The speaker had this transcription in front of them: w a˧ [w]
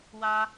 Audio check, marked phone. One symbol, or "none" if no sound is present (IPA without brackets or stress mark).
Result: none